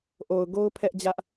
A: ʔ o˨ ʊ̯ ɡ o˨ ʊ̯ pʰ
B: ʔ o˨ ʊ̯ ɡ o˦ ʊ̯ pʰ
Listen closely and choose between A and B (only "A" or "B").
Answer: B